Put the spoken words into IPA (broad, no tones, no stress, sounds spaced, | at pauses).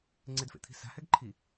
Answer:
ŋ͡ǀ ɪ d f ḛ t̪ʰ i̤ s a̤ h ɛ ɡ ǃʰ i